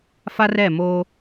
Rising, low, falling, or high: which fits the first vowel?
high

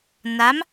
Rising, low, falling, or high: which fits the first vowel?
rising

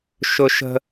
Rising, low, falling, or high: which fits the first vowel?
high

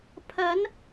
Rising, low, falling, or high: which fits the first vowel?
rising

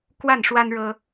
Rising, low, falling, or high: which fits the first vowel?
falling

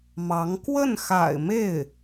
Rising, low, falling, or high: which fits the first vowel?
rising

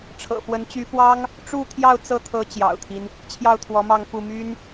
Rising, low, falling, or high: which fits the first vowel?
low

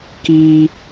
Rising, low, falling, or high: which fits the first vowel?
high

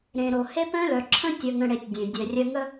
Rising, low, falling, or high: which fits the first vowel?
low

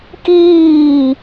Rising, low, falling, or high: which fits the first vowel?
falling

